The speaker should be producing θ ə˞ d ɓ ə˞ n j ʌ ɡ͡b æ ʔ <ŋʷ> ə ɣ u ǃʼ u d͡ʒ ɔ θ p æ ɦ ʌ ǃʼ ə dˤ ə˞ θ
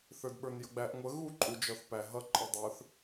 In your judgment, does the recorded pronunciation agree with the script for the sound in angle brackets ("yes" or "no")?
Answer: yes